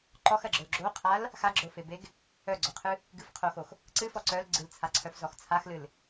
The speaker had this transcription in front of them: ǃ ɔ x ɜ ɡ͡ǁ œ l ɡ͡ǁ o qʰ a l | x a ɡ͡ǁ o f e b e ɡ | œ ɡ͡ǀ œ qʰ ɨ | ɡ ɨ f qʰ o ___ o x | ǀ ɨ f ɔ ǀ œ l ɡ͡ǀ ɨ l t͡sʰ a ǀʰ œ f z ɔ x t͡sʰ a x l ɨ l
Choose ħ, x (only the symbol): x